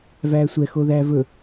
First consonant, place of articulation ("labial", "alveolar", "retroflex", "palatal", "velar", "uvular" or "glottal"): labial